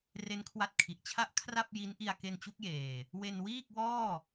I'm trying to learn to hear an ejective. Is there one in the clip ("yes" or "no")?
no